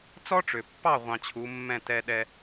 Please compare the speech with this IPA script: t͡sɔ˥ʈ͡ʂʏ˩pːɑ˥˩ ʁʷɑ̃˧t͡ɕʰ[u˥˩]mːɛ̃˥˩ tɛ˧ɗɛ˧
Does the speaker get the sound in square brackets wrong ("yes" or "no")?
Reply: yes